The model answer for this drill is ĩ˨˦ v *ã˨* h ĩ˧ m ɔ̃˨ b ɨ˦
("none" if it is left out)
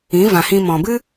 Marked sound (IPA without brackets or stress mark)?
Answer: ã˨